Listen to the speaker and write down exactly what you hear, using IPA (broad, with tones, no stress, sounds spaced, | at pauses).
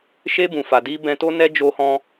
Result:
ʃ e˧ b ũ˨ f a˨ d i˧ b ɛ̃˧ t o˦ n ɛ˦ d͡ʒ o˧ h ɔ̃˧